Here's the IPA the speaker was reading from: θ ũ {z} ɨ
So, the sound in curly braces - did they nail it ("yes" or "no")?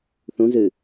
yes